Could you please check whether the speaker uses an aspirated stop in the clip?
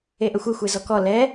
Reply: no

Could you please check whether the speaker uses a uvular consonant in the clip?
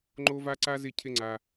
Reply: no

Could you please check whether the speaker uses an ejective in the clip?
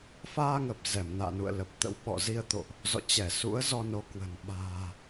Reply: no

